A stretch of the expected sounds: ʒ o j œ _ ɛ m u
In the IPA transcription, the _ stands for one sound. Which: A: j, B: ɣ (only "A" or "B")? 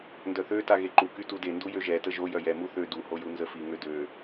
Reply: A